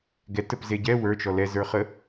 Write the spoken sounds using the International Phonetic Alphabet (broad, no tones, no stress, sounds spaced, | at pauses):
ɡ ɛ t ə p z e ɟ ɛ w ə˞ t͡ʃ ɔ l ɛ z ə˞ χ ə